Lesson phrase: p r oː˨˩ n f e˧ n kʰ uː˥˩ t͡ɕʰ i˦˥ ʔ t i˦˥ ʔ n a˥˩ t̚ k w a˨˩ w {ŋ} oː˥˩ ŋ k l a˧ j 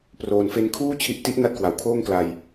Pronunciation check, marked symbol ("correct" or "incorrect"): incorrect